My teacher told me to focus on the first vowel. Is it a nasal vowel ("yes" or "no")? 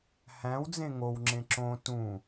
yes